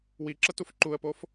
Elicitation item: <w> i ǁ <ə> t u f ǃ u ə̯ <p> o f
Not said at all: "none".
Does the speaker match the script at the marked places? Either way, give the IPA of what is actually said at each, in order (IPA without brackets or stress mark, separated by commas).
w, ə, p